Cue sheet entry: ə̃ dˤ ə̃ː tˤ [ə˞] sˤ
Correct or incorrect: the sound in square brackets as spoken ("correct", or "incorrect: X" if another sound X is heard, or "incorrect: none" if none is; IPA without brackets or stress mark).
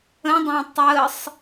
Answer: incorrect: ə